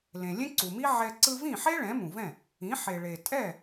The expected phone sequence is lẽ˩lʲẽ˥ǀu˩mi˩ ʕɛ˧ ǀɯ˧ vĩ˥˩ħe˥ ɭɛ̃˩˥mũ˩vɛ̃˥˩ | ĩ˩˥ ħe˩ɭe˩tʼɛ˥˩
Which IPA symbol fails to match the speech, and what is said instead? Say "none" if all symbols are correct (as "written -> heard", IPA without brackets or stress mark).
i˩ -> i˥